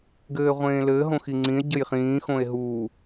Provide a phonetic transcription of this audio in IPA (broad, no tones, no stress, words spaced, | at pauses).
ɡɘːʁʷẽːlɘː ɦõxiŋ͡ǀĩe̯ ɟɘjχĩː xõe̯ɦuː